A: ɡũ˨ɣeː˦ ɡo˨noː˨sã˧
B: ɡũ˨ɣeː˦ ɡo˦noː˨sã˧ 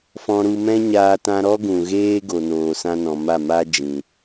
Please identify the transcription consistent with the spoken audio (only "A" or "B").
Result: A